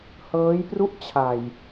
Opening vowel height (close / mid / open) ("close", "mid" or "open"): mid